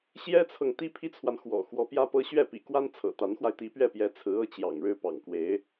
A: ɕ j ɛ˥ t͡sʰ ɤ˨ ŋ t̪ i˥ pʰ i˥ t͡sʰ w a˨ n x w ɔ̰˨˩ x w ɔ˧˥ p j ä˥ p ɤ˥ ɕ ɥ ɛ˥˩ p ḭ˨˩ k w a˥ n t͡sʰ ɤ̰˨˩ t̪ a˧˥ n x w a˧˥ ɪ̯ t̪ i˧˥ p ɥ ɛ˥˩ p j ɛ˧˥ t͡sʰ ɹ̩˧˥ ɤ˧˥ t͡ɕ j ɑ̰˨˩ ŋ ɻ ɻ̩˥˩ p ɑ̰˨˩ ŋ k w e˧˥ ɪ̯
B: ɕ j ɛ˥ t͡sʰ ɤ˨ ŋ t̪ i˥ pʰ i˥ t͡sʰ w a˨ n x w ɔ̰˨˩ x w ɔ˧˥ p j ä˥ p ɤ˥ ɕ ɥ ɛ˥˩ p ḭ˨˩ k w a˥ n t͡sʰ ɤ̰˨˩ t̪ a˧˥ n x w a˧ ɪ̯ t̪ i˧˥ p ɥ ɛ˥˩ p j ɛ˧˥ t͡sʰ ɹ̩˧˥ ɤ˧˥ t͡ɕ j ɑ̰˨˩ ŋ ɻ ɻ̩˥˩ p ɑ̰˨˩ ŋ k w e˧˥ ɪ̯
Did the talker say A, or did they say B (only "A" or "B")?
B